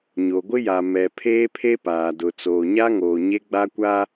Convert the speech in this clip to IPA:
ɲo˨ɡʷɪ˦ja˨ mɛ˨ pʰeː˦pʰe˦paː˨ dʊ˨t͡soː˨ ɲa˦ ŋoː˨ ɲe˦ ɡ͡ba˦kʷa˦

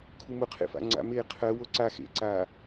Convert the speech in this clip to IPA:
kʰumʊqʰḛfa̰ ŋ͡ǀa̰meː qʰɜ woǀa xḛǀaː

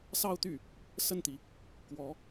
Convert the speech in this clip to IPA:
sɑ˥˧ʊ̯t̪y˥˩ | sə˥˩nt̪i˩ | kwɔ˧˥

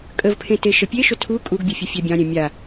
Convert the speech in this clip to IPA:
kʼəvpʰẽ teʃəpʲeʃɵ tʰu kʼuɡbʲɵ fʲəfʲɛbʲɑ̃ɾʲɛ̃ mʲa

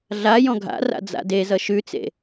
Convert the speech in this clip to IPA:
ɮa jɔ̃ɡʱa̰ra̰ d͡za̰dezʌ ʃʉt͡sḛ

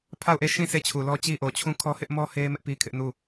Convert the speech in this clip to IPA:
pʰa˦˨ʊ̯ʔe˦˨ ʃĩ˦˨ sʰe˦˨t͡ɕʰu˨lɔ˦ t͡ɕi˦ʔo˨t͡ɕʰũ˦ kʰɔ˦hɪ˦ʔmɔ˦ he˦mɪ˦ʔ pi˦kʰɪ˦ʔnu˦˨

